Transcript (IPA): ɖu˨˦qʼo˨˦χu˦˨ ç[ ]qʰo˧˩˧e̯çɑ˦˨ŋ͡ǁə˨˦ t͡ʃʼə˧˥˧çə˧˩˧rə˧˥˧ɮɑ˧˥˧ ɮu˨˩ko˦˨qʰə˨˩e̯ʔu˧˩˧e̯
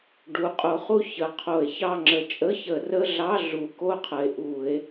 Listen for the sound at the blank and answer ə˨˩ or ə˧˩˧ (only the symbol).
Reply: ə˨˩